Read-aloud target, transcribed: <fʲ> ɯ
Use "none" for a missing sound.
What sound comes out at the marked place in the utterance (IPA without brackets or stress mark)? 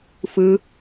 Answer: f